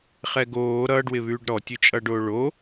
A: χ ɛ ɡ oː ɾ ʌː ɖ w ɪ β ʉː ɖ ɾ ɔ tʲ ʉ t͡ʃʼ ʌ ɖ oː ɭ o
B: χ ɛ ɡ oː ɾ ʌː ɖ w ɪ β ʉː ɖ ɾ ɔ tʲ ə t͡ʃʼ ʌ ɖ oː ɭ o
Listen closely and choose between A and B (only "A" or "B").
A